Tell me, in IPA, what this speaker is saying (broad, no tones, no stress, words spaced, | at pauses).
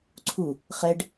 ǀʰu | χɛɖ